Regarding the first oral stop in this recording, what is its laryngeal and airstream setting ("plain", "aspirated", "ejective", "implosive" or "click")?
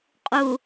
ejective